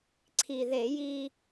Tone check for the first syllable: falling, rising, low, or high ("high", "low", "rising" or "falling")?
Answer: low